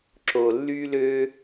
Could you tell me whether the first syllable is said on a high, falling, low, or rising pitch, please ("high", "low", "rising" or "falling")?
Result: low